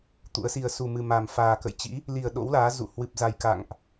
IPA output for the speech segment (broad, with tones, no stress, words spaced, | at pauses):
t̪ṵ˧˥ə̯si˧ə̯ su˨˩mɨ˨˩ ma˨˩m faː˨˩kə̰˧˨jt͡ɕḭ˧˥ | li˨˩ə̯ ɗo̰˧˥wlaː˨˦ zṵ˧˨ hwɨ˨˩p̚za˨˩jka̰˧˨ŋʔ